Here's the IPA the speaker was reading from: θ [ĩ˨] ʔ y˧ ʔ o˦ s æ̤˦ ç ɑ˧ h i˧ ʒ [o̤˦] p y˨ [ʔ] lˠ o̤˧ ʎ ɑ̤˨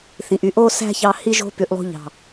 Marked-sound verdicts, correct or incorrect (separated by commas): correct, incorrect, correct